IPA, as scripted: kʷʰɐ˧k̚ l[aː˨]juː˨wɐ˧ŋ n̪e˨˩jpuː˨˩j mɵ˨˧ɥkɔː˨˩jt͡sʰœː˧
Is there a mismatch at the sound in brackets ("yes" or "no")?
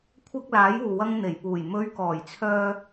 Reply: yes